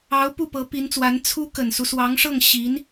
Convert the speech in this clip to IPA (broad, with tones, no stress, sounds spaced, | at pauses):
ɑ˧˥ ʊ̯ p u˥˩ p ɤ˧˥ p i˧˥ n t͡s w a˧˥ n t͡sʰ u˧˥ k ə˨˩ n s u˦ s w ɑ˧˥ ŋ ʂ ɤ˥˩ ŋ ɕ i˧˥ n